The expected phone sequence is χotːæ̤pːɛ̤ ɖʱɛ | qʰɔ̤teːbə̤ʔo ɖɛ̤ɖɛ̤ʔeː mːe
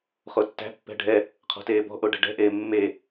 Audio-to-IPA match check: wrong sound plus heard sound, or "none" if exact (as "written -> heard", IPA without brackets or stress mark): ə̤ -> ɔ̤